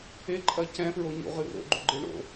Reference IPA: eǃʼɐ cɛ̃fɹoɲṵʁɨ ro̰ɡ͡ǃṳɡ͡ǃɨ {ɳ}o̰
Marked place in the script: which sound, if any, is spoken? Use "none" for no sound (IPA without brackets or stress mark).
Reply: ɳ